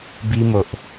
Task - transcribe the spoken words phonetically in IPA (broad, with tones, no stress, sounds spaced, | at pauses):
b i˦ m o˨ ʔ